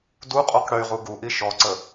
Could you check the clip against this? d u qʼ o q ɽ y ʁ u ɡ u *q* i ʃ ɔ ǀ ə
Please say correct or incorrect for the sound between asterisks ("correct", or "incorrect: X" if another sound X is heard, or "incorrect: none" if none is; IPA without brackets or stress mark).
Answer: incorrect: ʔ